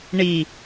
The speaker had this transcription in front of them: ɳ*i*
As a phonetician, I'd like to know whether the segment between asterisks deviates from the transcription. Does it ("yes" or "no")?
no